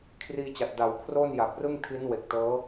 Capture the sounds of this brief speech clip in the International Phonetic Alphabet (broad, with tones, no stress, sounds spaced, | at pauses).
kʰ r iː˧ t͡ɕ a˨˩ t̚ d a˩˦ w kʰ r o˥˩ n j a˨˩ p̚ r ɯ˥˩ ŋ tʰ i˦˥ n w e˨˩ k̚ t ɤː˦˥